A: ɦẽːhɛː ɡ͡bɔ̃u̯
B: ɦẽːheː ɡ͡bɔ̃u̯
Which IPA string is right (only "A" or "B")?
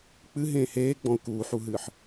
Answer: B